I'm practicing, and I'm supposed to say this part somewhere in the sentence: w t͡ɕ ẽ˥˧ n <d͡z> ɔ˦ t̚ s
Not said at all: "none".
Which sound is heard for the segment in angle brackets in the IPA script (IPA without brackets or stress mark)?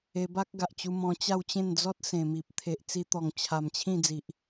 d͡z